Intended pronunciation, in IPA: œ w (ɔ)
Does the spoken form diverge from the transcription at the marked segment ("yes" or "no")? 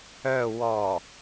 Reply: no